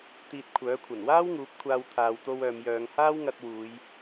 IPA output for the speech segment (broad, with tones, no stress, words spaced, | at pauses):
t̪iː˧t̚kʷʰœː˨˥kʷʰɐ˨˩n waː˥wŋuː˨˥p̚ kʷʰaː˧wt̪ʰaː˨wt̪o˧w œː˨mjœː˨˧ŋ haː˥wŋɐ˧t̚ wuː˨˧j